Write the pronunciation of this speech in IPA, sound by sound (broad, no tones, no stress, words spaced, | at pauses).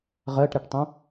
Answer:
ʁɜʈɾɛʈtˤõ